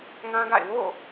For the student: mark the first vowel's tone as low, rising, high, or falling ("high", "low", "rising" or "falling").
high